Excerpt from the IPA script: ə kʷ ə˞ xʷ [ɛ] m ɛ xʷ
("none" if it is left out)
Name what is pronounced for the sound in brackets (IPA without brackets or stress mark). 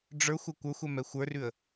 ɛ